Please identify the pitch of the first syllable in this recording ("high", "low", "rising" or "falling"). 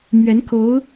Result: rising